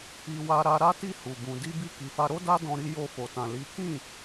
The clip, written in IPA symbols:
i˧ w a˧ ɾ a˧ ɾ a˦ t i˦˨ h u˨ b ũ˨ d i˧ b i˧ k i˨ f a˧ ɾ o˦ d a˦ d ɔ̃˧ ɾ i˧ j o˧ f o˨ t ã˨ l i˨˦ k ĩ˦˨

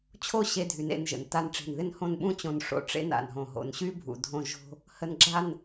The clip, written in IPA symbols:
t͡ɕʰ o˥˧ ɕ e˧ dʱ y˩˧ n ḛ˧ n ʒ ə̰˩˧ n t a˧ n ʈ͡ʂ e̤˧˩ n ð ɪ˥˧ n h õ˥˧ n ɓ ũ˥ t͡ɕ õ˧ n ʂ o̰˥ ʈ͡ʂ ḛ˥ n a̰˧˩ n ɦ õ˧˩ ɦ o̰˧˩ n ɕ y˥ bʱ ṵ˧ dʱ õ˥˧ ʒ o̤˥ | h ə˧ n ɡ͡ǁ a˥˧ n

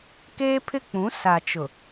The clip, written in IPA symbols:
k eː˦ pʰ ɪ˦ k͡p ũ˨˦ s a˨ t͡ʃ ʊ˨

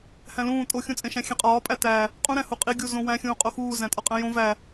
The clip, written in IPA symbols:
h æ̃ l ũː tʼ o xʲ ũ t͡sʼ ẽ ʃ æ̃ xʲ ẽ qʼ ɒː pʼ æ t æ | qʼ ũ ɾ æ̃ h u qʼ i ɡʲ u z õ w æ̃ xʲ ũː qʼ o x uː z æ̃ tʼ ɒ qʼ æ̃ j õ v æ

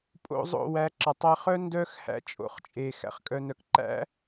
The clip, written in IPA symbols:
pʼ o̰˧ zˤ o̰˦˨ w æ˨˦ ǁ ɑ˨ tˤ æ˧ χ œ˦ n d œ˦ x h æ̰˧ t͡ʃʼ o̰˨ χ t͡ʃʼ e˨ x æ̰˨ χ kʼ œ˧ n œ˧ k ǃ æ̰˦

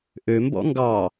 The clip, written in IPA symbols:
ʔ ø m b ɔ̰ ŋ ɡ ɑ

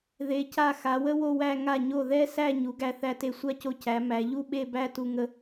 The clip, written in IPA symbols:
ð e˩˧ c a˧˩ x a˩˧ w ə˥ w o˥˧ w æ˥˧ ŋ a˧˩ ɲ o˧˩ ð ɛ˥ s æ˥˧ ɲ u˩˧ ɡ æ˧ θ æ˧ t e˧ sʷ a˥˧ c o˧ c æ˩˧ m æ˩˧ ʎ u˥˧ ɓ e˥˧ b æ˥˧ t u˧ ŋ ə˧

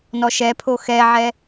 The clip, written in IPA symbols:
n ɔ ʃ ɛ pʰ o x ɛ ʕ ɛ

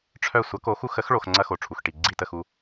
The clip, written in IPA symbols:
ʈ͡ʂʰ œ˦˨ sʷ ʌ˨˥ k o˨˥ x u˨˥ x ə˨˥ x ɭ o˨ x ŋ͡ǀ ɐ˦ x o˨ ʈ͡ʂʰ u˨ x ʈ i˨ ɡ͡ǀ i˦˨ t ə˦˨ x u˦˨

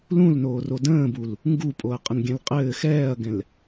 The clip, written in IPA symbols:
l ũ l n oː r o d ə̃ː b u l | ŋ ɡ u pʼ o ɐ̯ qʼ ə n ɡʲ ɛ̃ l qʼ ɘː x ɛː ɐ̯ ɡ ɛ̃ l

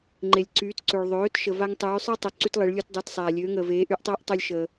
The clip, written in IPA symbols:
ŋ͡ǃ e˩ lʲ ǀ yː˩˧ t ǀ ø˩ ɭ ðˤ øː˩˧ t ʃ ə˩ v a˧ ŋ tˤ yː˩˧ sˤ ə˞˥ tˤ ø˩ ǀ y˧ t lˠ e˩˧ ɭ lʲ o˧ t dˤ ə˞˩˧ t sˤ aː˩ lʲ øː˩˧ ŋ əː˩ v eː˩˧ ʔ y˩˧ ʔ tˤ əː˧˥ ʔ tˤ o˧ lʲ ʃ əː˩

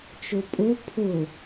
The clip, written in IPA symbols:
t͡ʃ o pʼ ʊ pʰ ʊ

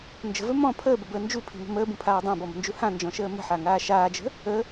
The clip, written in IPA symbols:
n d͡ʒ ə̤ v ɵ m ɔ̃ pʰ əː b ə b əː n d͡ʒ u pʰ i̤ m ə̤ m əː b ũ pʰ aː dˤ ã b ɔ m ə̤ n d͡ʒ u h ã n d͡ʒ ɔ̃ ʃ əː m ə̤ ħ a ŋ aː ʃ aː d͡ʒ ə̤ | ə

